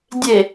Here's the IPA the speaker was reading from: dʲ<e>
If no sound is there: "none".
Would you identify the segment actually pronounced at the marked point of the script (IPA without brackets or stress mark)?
e